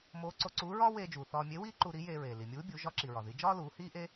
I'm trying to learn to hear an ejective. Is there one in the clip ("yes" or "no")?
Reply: no